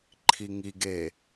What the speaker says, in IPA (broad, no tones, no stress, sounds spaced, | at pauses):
ǃʰ i ŋ i ɡ e